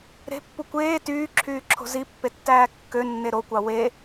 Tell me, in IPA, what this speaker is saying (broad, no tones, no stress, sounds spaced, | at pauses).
ɾ e̤ pː u kʷ eː t yː ǁʰ yː ǁʰ o̤ z i pː e tː æː kː ø nː e ɾ o kʷ ɑ w e